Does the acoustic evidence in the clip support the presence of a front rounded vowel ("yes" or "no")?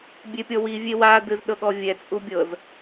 no